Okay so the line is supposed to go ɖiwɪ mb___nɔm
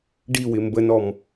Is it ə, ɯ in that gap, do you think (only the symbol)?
ə